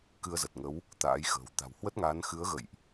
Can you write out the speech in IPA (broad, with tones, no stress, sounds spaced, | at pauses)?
k ɨ˧ ə̯ z ə˨˩ t̚ ŋ ə˨˦ w | t̪ a̰ː˧˥ j x ə̤ː˨˩ w t̪ a̤˨˩ w h w ə˦˥ t̚ ŋ aː˨˦ n x ɨ˨˦ ə̯ ɣ ə̰˧˨ j ʔ